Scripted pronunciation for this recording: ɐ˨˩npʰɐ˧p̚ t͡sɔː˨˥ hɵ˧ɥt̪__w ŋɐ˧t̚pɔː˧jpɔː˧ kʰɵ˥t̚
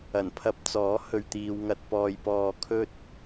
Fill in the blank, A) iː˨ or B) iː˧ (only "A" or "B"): B